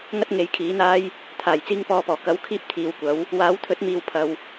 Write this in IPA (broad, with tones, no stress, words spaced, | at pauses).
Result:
ŋɐ˥t̚ŋe˨˧jkʰiː˨˥n̪aː˥j | t̪ʰaː˨˩j t͡siː˧ŋ pɔː˨pɔː˨˩ kɐ˨˥wkʰiː˧p̚ t̪ʰiː˨wkʷɐ˨˥w | waː˨˥wt̪ʰɵ˨˥t̚miː˨w pʰɐ˨w